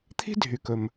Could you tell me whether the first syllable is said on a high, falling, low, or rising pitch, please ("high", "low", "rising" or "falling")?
high